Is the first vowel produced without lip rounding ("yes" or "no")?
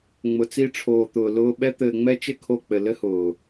no